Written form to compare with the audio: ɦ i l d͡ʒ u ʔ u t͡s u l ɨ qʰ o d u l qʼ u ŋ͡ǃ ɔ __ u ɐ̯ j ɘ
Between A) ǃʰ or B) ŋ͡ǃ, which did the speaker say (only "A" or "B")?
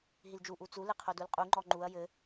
B